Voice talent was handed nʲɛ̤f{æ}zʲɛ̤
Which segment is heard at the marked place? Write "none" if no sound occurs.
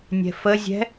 ə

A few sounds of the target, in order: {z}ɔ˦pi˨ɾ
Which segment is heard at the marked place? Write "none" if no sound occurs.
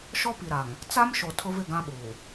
ʃ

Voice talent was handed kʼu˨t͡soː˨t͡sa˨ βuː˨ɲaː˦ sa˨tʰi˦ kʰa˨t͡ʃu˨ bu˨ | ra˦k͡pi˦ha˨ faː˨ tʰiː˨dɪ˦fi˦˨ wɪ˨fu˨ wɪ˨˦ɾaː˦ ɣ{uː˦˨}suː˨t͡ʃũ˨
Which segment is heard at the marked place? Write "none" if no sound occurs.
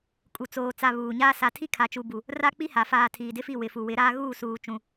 uː˦˨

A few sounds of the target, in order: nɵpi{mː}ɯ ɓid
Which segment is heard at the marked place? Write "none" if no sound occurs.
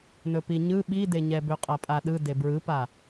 ɲ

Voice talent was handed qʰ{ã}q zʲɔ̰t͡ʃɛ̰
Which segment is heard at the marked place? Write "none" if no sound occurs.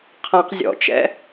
ã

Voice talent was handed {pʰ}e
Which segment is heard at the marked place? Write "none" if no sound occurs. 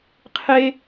qʰ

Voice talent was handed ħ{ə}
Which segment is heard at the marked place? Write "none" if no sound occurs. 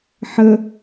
ə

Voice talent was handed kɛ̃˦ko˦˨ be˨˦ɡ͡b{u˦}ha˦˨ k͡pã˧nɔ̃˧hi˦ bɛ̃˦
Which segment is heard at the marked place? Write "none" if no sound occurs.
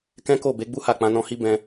u˦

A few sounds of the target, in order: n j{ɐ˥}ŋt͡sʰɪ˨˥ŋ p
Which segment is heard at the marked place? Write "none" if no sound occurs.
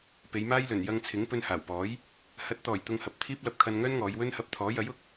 ɐ˧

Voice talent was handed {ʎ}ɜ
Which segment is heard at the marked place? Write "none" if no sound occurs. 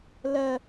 l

